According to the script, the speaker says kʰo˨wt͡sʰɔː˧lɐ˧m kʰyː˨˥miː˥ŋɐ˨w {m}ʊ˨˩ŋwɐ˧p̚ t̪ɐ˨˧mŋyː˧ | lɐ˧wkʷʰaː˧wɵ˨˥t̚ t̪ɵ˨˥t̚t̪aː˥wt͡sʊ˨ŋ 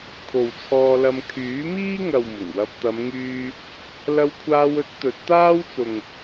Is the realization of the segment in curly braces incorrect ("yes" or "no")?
no